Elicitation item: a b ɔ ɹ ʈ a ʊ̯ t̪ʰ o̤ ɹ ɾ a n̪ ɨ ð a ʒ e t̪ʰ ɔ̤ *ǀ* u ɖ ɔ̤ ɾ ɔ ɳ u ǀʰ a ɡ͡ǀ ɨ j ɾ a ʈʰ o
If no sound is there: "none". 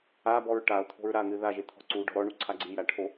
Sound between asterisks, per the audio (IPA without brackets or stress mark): ǀ